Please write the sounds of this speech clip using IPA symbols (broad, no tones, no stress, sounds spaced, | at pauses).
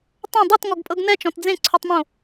tˤ õ dˤ u t ŋ ɔ ɡ pʼ ɤ ɡ n ɛ t͡ʃ ɔ̃ t d͡z ẽ ǀʰ u tˤ m õ